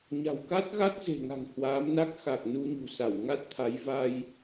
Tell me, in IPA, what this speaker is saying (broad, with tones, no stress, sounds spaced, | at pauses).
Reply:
ɲ a̤˨˩ w k a˦˥ t̚ ɣ a˦˥ t̚ z e̤˨˩ ŋ a̤˨˩ ŋ h w aː˨˦ m n a˦˥ k̚ x a˨˩ k̚ n u˧ ɲ ṳ˨˩ s a˧˩ w ŋ a˦˥ t̚ t̪ʰ a˨˦ j v a˧ j